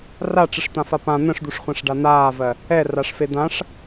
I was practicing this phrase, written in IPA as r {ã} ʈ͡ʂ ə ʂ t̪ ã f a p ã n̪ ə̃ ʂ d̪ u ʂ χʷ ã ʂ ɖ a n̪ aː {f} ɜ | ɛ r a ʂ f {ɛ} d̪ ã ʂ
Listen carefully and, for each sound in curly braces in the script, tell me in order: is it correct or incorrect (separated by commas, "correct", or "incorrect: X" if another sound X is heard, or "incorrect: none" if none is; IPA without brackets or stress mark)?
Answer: incorrect: a, incorrect: v, incorrect: e